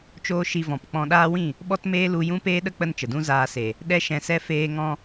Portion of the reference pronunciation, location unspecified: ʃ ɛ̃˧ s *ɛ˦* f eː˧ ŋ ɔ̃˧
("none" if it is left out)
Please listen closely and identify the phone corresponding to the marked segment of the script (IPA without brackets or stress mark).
ɛ˦